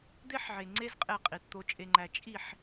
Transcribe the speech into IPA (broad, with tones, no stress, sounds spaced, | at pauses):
d̪ e˦ ħ ʕ e˨ ŋ͡ǀ e˦ z qʼ e˦˨ qʼ i˨ t t̪ o˦ t͡ʃʼ e˦ ŋ͡ǃ æ˦ t͡ʃʼ i˦˨ ħ